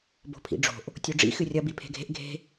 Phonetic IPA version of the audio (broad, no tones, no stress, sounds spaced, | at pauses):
b o̤ pʰ ḭ ɖ͡ʐ o̤ ʔ | tʲ o ɖ͡ʐ ḭ x ɨ rʲ ɐ b i pʰ e̤ ɡʱ e̤ ʔ ɡʱ e̤